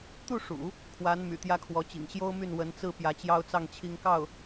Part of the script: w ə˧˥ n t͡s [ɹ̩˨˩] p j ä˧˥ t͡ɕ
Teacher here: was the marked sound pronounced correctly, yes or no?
no